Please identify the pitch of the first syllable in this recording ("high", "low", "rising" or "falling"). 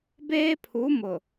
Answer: high